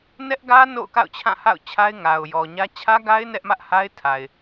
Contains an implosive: no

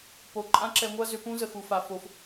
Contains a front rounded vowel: yes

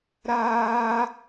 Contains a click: no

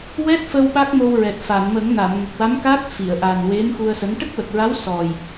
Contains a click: no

